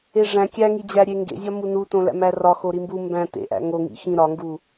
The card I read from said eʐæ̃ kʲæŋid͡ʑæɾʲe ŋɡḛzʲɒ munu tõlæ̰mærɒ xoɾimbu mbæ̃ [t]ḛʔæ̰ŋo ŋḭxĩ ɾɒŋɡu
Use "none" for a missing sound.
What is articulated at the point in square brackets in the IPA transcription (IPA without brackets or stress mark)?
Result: t